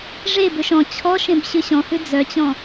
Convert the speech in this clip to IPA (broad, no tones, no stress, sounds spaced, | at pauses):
ʐ e b ø ʃ ɔ̃ t͡ɕʰ ɔ ʃ ẽ b ɕ ʉ ɕ ɔ̃ h ʉ d͡z œ t͡ɕ ɔ̃